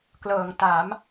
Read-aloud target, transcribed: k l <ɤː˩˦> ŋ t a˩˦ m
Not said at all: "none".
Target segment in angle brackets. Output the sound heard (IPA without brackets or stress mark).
ɤː˩˦